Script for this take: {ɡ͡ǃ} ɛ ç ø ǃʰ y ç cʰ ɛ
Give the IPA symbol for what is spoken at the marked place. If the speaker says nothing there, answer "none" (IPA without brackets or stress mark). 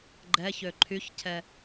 ɡ͡ǃ